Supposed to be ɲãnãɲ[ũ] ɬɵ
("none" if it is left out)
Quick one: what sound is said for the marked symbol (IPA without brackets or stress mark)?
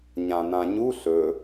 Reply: u